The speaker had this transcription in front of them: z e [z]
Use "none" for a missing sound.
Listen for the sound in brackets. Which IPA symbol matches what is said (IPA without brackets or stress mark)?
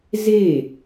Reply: none